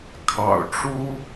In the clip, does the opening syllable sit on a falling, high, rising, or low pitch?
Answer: low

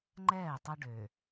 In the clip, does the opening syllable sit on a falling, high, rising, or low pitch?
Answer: falling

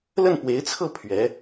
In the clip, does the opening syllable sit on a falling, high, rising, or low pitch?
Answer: falling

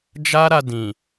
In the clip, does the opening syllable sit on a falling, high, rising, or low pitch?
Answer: high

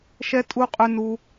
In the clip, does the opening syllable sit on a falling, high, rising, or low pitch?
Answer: high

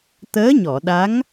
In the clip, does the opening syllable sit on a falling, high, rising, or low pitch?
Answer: rising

